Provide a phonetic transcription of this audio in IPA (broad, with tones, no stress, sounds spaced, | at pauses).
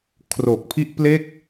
kʰ r o˨˩ k̚ pʰ i˥˩ ʔ p l e˥˩ k̚